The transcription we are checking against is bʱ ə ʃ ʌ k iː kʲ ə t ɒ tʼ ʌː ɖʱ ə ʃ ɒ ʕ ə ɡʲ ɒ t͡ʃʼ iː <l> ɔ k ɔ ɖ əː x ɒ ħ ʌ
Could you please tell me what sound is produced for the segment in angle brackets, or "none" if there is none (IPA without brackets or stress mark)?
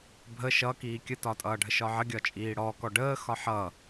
ɽ